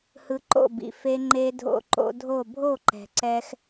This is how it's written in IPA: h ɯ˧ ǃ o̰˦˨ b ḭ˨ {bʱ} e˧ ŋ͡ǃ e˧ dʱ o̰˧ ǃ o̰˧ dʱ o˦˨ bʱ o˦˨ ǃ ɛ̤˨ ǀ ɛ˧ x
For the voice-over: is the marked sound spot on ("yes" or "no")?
no